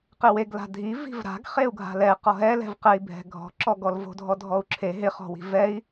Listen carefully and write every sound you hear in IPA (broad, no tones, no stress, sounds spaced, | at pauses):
q e w e ɡ l a̤ dʱ i v i̤ v ɾ a̤ ɡ χ e u̯ ɡʱ a̤ l ɛ q ɔ ɦ ɛ l ɛ̤ v q ɛ i̯ bʱ ɛ̤ ɡʱ ɔ̤ ǁ ɔ ɡ ɔ l v o̤ dʱ ɔ dʱ ɔ u̯ ǁʰ e ɦ ɪ χ ɔ̤ w i̤ v ɛ i̯